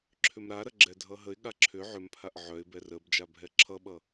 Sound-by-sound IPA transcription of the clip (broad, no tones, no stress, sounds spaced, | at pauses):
ǁʰ ʏ m ɾ a ɾ ɐ ɡ͡ǁ ɛ dʱ ʌ ɦ ə ɪ̯ ɠ a ǁʰ ʏ ʕ ʏ m pʰ a ʔ ʕ œ ɪ̯ b ɛ r ə b d͡ʒ a bʱ ɛ ǁʰ ʌ ɓ ʌ